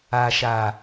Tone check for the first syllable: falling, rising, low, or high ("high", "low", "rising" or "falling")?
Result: low